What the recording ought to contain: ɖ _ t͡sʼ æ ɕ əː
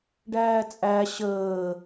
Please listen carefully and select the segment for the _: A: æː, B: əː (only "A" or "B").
A